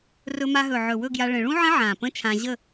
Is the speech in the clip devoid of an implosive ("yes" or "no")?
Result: yes